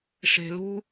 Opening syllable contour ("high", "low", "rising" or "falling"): low